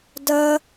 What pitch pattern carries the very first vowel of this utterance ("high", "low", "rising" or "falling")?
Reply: high